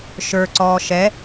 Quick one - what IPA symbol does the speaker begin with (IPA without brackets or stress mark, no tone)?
ʃ